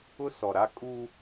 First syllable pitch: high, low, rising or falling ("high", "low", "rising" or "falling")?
high